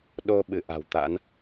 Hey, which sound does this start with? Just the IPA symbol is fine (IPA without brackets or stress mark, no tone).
ɗ